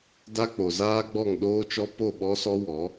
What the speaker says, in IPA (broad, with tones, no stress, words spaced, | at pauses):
da˦k͡po˨zaː˦ ɡ͡bɔ˦˨ŋ ɗoː˦t͡ʃɔ˦ po˦˨ɓɔ˦sɔ˦wɔ˨˦